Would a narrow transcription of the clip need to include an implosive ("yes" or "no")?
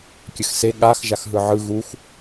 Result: yes